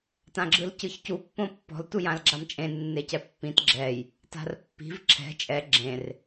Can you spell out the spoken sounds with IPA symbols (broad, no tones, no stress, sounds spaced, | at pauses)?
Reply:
t ã ɡ͡ǁ ɯ l c ɯ ç c u pː õ pː ɔ̤ l t u j ã l ɡ͡ǁ a m t͡ʃʼ ẽ nː e c ɛ pː ĩ t ɡ͡ǁ ɛ j | t a̤ r pː i̤ v ǁʰ ɛ̤ t͡ʃʼ ɛ ɡ͡ǁ ẽ r